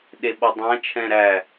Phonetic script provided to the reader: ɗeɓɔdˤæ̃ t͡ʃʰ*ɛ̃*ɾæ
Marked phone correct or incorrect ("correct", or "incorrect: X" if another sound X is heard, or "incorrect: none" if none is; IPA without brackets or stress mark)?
correct